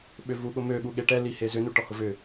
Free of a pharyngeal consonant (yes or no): yes